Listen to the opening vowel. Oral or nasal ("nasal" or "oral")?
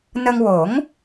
oral